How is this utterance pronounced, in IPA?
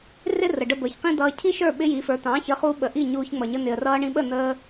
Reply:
r ɪ˥ r ə˩ ɖ ə˧ b əː˩ ç q ĩ˥ d̪ ʌː˧ cʰ i˥ ʃ ə˞˥˩ ɓ ɪ˥ j i˩˥ f ə˞˩˥ t̪ ɑ̃˩˥ ç ə˩˥ χ uː˧ ɓ ə˩ ʔ i˥˩ ɲ uː˧ ç ŋ͡m ʌ˩ ɲ ə˧ n̪ ɪ˩ ə̯ r ʌː˧ ɳ ĩ˧ ɓ ə˥˩ n̪ əː˧

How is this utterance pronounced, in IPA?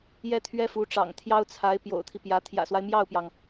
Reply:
j ɛ˥ t̪ʰ ɥ ɛ˥ f u˧˥ ʈ͡ʂ ɑ̰˨˩ ŋ t̪ʰ j ɑ˥ ʊ̯ t͡sʰ a˧˥ ɪ̯ p j o̰˨˩ ʊ̯ t̪ʰ i˦ p j ä˧˥ t̪ʰ j ä̰˨˩ s w a˦ ɪ̯ m j ɑ˥˩ ʊ̯ p j ɑ˩ ŋ

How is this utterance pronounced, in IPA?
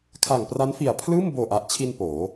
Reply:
kʰ a˨˩ ŋ p r a˦˥ n f i˨˩ a̯ pʰ l ɯː˥˩ m b oː˨˩ ʔ a˨˩ ʔ t͡ɕʰ i˧ n p oː˩˦

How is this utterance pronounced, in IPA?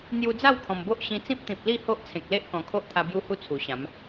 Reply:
n̪ j u˧ d͡z a˥˧ w kʰ ɔ̃˨˩ m b o˦ ʔ ɕ ĩ˧ t͡s ĩ˦ p̚ t̪ ĩ˨ p̚ l i˥˧ h o˦ ʔ t͡sʰ ẽ˨ k̚ l e˦ ʔ k ɔ̃˨˩ kʰ o˦ ʔ t̪ʰ a˧ b j u˧ h u˧ t͡sʰ u˨˩ ɕ ã˨˦ m

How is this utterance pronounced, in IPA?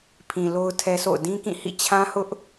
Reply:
pʰ ĩ˨ l o˦ ʊ̯ tʰ ɛ˦ s o̰˦˨ ʊ̯ d ĩ˦ k ĩ˦˨ h ḭ˦˨ t͡ɕʰ ã˦ h ʊ˦ ʔ

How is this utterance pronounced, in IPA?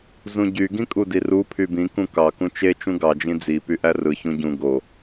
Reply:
z ũ ɟ y ɡ ĩ kʼ u d i r u pʰ y b ĩ k ũ k ɑ k ũ t͡ʃ e t͡ʃ ũ ɡ ɑ d͡ʒ ĩ d͡z i p y ʔ æ r ɯ ç ũ ɟ ũ ɡ o

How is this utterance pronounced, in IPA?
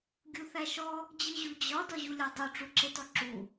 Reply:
ɡʲ u θ æ ʃ ɔ | d͡ʑ ɯ ʑ u d͡ʑ ɒ d ɒ ʑ u lʲ ɒ dˤ u ʈ͡ʂ u ǁ e t ɔ ǁ u

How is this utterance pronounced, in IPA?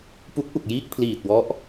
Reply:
p u˦˥ k̚ ʔ u˨˩ k̚ j iː˥˩ k̚ pʰ l iː˨˩ t̚ w ɔ˦˥ ʔ

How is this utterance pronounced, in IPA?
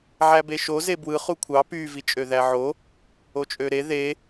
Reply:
ʕ æ b e ʃ o z e b w ɯ χ u kʷʰ ɑ p y v i t͡ʃʼ ø ð æ ʕ o | o t͡ʃʼ ø ɾ e ð e

